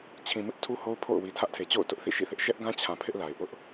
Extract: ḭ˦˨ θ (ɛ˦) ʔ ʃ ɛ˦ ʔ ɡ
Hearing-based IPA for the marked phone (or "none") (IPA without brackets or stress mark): ɪ˦